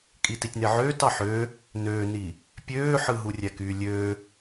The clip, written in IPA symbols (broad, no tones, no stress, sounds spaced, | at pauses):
kʼ i t i tʲ n e ʕ øː t ɑ ħ ø | n øː n i | pʲ øː ħ ɯ ɦ u rʲ æ k yː lʲ ø